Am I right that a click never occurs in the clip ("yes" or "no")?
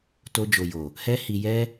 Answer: yes